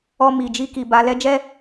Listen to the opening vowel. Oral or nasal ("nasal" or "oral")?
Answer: oral